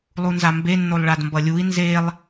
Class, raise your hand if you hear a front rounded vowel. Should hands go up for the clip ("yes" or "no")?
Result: no